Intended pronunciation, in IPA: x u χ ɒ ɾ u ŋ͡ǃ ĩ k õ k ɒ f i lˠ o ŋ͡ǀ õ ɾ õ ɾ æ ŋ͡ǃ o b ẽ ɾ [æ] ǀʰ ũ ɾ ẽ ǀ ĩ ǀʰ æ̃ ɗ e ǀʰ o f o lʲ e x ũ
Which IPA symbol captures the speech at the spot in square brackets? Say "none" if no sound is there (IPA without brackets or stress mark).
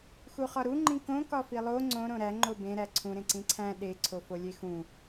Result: æ